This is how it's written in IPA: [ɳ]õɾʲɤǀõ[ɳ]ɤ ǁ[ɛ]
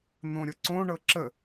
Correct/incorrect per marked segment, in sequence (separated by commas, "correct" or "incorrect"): incorrect, correct, incorrect